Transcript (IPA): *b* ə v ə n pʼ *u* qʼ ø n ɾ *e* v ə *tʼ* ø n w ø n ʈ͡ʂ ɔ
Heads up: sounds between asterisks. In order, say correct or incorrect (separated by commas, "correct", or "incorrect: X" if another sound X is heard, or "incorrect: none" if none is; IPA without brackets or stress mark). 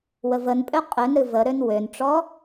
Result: incorrect: w, incorrect: ø, incorrect: ɨ, incorrect: ɾ